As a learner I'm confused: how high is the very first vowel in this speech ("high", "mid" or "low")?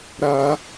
low